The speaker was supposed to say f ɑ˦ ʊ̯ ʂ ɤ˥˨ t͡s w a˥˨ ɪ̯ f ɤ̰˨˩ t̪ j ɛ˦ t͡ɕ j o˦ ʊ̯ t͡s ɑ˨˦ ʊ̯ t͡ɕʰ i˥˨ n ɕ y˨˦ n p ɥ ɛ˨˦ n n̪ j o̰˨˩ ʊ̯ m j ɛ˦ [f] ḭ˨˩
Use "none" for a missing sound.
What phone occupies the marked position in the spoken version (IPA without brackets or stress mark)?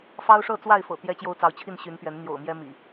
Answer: m